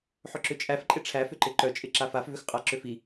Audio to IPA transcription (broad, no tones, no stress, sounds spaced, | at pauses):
ħ ʏ ǁ ʏ t͡ʃʼ æ f ǃʼ ɪ ʈ͡ʂʰ æ f ʏ ǃ ɪ ǃ œ t͡ʃʼ ɪ ǁ a f a f v ʏ x qʼ a ǁ ʏ f i